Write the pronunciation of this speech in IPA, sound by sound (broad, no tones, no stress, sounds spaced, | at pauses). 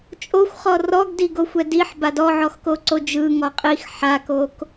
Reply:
t͡ʃʼ o xʷ χ ɔ r ɔ ɡ d i ɡ o xʷ ɛ d i ħ b a d ɔ ʕ ɔ x k o ǀ o d͡ʒ ɯ ŋ ɔ qʼ i x ħ a k o k